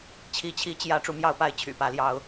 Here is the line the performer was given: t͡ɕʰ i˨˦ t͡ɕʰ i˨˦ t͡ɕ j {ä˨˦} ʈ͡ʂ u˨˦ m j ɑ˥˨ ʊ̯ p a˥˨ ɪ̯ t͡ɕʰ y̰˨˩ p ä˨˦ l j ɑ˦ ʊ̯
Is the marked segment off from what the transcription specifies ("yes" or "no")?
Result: no